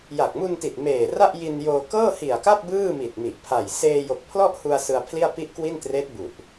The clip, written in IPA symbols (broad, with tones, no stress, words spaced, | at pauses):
ja˨˩k̚mu˧nti˨˩t̚ meː˨˩ra˥˩ʔji˧njoː˧ kɤː˥˩hi˨˩a̯ka˥˩p̚ bɯː˥˩mi˨˩t̚mi˨˩ʔpʰa˨˩j seː˧jo˨˩k̚pʰlɔ˥˩ʔhu˧a̯ sɯ˧a̯pʰli˥˩a̯ pi˥˩ʔkwi˥˩n treː˦˥t̚bu˨˩ʔ